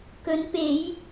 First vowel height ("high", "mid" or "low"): mid